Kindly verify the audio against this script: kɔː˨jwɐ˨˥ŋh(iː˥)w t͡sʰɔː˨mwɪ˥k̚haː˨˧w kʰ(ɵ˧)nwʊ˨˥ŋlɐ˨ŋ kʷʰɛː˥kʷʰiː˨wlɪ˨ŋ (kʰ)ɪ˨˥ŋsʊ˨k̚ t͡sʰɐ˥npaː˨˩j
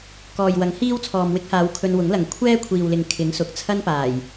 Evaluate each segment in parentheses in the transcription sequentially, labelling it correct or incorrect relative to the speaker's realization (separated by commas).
correct, correct, correct